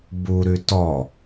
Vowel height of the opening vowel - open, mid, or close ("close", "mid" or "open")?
close